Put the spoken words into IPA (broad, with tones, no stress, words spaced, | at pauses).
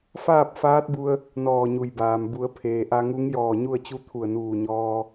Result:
faː˥˨p̚faː˧˥t̚bu˧ə̯ | nɔː˧˩ɲu˩j baː˩m bu˩˧ə̯pʰeː˩ ʔa˧ŋu˧˥ŋ jɔː˧˩ɲu˥˨ə̯t͡ɕu˧˥ t̪ʰu˧˩ə̯nuː˧˩ɲɔː˧